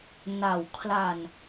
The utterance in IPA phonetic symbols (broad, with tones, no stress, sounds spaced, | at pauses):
n a˩˦ w kʰ l a˨˩ n